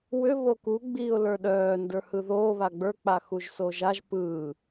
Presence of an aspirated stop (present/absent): absent